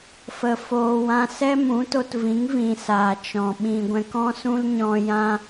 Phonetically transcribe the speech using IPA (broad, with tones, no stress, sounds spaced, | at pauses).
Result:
f ə˧ f oː˧ w ã˦ s ɛ˦ m ũ˨˦ t o˧ t v ĩ˨˦ ŋ v ĩ˨ s aː˨ t͡ʃ ɔ̃˨ ɓ ĩ˨ ɡʷ ɛ̃˨ k ɔ̃˧ s ũ˦ l ɲ ɔ̃˧ j ã˦